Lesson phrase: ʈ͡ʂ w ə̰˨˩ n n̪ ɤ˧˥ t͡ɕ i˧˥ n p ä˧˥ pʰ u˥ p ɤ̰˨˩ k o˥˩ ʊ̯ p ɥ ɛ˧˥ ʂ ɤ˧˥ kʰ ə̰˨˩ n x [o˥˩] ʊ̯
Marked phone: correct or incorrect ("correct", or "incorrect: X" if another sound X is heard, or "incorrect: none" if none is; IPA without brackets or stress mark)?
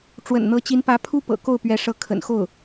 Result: correct